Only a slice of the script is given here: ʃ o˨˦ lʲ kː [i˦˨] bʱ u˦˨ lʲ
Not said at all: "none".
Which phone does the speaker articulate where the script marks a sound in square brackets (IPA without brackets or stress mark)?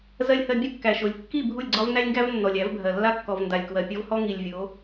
i˦˨